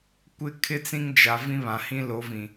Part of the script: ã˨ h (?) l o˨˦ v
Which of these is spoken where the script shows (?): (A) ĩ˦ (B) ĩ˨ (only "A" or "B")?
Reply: A